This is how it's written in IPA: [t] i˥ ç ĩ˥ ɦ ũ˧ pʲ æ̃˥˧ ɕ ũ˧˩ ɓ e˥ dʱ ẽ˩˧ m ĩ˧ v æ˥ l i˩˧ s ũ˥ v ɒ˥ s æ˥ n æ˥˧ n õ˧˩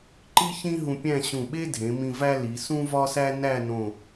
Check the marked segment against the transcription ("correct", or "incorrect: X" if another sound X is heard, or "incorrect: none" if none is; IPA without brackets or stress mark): incorrect: ǃ